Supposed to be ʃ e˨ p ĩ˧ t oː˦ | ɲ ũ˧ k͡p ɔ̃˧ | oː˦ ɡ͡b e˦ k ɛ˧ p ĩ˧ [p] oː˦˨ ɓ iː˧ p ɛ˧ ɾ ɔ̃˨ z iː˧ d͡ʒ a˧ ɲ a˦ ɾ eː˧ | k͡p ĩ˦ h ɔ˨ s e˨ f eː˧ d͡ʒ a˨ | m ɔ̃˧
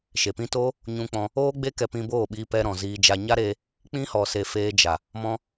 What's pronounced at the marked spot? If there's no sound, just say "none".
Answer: b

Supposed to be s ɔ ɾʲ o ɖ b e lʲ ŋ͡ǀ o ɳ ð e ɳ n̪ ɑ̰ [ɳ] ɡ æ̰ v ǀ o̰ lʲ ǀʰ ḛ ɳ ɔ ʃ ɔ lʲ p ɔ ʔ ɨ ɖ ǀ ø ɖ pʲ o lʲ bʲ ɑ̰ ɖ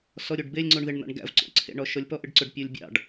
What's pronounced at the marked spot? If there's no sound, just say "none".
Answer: ɳ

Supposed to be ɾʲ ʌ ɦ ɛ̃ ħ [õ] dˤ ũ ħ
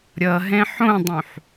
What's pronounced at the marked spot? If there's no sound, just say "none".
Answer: õ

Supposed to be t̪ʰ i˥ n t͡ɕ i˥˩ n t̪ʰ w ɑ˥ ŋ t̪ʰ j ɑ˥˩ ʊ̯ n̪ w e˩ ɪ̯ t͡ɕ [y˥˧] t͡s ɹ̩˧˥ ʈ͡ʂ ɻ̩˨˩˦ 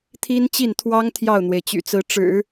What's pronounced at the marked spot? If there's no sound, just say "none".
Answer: y̰˨˩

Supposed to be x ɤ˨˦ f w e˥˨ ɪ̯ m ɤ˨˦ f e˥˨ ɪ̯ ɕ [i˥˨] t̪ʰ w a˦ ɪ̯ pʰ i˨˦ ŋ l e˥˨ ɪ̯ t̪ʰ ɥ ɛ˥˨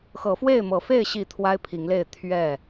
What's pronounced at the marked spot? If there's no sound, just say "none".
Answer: i˥˨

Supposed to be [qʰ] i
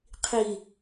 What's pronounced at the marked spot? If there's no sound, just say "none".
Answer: qʰ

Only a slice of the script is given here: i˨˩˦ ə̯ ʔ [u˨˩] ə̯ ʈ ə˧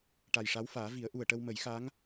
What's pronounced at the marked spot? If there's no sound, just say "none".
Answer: u˨˩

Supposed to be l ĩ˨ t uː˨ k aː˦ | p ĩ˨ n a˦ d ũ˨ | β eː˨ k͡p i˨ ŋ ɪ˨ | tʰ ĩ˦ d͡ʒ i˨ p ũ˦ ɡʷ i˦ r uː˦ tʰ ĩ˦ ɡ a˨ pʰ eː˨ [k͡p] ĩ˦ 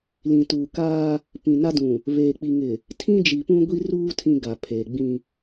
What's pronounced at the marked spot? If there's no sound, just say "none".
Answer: ɡ͡b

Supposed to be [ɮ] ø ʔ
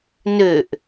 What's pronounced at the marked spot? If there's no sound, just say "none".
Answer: n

